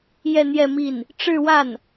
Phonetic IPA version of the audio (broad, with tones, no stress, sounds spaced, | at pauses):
j ɛ˥˧ n̪ j ɛ˥˧ m i˥˩ n | ʈ͡ʂ ɻ̩˥˧ w a˥˩ n